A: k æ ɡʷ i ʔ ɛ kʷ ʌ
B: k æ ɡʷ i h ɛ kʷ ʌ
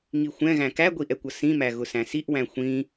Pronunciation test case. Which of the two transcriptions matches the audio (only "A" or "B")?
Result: A